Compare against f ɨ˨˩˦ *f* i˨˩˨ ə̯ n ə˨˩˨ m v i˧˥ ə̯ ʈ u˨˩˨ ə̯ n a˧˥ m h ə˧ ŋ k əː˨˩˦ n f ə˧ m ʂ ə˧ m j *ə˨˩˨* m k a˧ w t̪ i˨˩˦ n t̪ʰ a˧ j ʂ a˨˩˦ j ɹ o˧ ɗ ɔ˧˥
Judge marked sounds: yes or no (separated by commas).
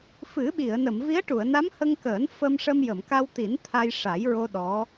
no, yes